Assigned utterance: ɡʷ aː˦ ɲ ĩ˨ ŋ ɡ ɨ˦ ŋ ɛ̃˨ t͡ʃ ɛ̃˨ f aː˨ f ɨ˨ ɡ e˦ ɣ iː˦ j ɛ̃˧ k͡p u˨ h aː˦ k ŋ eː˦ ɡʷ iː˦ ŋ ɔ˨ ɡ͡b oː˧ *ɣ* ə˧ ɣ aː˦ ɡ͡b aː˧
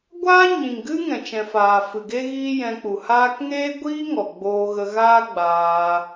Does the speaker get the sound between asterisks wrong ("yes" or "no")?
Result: no